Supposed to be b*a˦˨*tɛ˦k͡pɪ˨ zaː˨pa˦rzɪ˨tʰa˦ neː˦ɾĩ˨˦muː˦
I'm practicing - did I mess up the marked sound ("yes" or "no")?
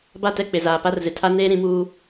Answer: no